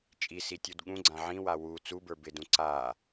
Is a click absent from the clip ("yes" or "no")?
no